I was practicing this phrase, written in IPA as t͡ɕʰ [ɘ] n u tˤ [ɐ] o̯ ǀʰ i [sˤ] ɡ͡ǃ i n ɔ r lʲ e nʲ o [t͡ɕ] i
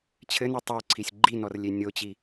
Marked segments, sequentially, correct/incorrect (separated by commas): correct, correct, incorrect, correct